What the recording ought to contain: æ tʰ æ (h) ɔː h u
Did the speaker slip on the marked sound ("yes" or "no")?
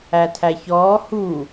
yes